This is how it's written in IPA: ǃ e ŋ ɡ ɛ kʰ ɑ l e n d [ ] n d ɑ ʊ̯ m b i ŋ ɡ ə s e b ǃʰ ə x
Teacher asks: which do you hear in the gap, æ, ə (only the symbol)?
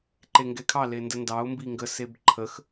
ə